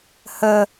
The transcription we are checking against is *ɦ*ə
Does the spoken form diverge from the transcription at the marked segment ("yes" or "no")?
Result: yes